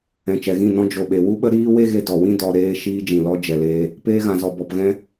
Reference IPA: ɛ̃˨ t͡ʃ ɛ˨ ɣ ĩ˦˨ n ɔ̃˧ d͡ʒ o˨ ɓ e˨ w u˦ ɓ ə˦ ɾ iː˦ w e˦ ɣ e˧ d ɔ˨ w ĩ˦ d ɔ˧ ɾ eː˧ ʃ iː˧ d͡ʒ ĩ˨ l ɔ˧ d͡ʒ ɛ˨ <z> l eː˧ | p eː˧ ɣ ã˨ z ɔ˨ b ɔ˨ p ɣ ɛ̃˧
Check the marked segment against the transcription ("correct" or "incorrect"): incorrect